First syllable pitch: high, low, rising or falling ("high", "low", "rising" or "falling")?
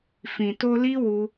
low